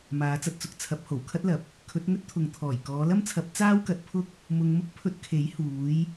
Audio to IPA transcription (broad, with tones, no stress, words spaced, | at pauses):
maː˨˧t͡sɐ˧t̚t͡sʊ˨k̚ t͡sʰɐ˨˥p̚ho˨˩wkʰɐ˥t̚lɐ˨p̚ | kʰɵ˨˥t̚ŋɵ˥t̚t̪ʰʊ˨ŋt̪ʰɔː˨˩j kɔː˨˧lɐ˥mt͡sʰɐ˨˥p̚ t͡saː˥wkɐ˨˥t̚pʰʊ˥k̚ | mʊ˧ŋmʊ˥k̚pʰɵ˧t̚ kʰe˨˥j huː˨˧j